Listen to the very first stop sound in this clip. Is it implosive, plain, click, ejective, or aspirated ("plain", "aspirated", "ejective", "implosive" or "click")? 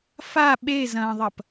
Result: implosive